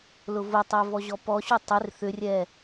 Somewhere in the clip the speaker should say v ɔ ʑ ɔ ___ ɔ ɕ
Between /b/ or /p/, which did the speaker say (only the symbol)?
p